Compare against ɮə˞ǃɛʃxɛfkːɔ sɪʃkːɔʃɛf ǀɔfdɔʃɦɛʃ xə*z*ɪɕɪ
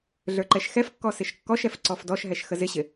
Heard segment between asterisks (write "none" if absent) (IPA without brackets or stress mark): z